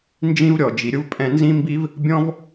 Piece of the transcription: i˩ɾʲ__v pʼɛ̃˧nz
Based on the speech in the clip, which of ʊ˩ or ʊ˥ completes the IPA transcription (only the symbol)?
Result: ʊ˥